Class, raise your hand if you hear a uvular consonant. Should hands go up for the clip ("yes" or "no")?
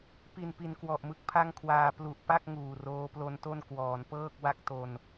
no